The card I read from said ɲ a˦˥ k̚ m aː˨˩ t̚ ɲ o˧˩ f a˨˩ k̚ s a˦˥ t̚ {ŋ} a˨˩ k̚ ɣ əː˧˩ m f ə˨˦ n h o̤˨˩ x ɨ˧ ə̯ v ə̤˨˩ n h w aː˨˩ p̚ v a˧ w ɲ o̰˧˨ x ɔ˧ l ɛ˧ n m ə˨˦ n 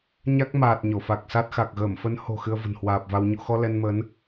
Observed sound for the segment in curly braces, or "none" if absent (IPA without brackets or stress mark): x